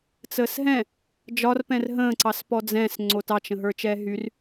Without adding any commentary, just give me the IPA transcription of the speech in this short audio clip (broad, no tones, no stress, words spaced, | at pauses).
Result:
t͡səːsɦɛ̃ | d͡ʒɒrpɛ̃r ɦə̃ːǀɑs pɔd͡zɛ̃s ŋ͡ǀotɑt͡ʃ ə̃ɦə˞t͡ʃɛːɦyr